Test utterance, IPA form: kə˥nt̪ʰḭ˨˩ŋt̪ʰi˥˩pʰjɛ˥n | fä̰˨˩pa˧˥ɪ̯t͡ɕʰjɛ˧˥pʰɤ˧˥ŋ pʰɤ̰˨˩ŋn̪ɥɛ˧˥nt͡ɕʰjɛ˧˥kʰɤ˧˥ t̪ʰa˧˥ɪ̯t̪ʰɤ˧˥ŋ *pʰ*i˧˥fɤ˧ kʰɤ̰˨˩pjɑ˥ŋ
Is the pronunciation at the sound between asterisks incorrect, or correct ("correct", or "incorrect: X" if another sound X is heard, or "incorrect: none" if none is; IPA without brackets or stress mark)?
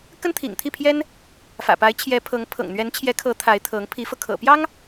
correct